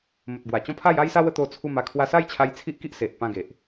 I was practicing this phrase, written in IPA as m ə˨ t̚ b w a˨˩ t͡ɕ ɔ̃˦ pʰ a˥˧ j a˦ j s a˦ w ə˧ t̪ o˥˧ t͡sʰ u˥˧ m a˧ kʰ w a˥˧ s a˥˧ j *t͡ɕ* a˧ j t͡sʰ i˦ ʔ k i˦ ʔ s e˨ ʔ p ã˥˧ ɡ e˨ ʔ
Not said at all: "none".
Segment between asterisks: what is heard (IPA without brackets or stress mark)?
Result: t͡ɕʰ